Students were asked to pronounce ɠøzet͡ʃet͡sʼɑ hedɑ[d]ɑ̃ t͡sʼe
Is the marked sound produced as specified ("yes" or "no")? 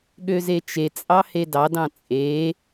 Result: yes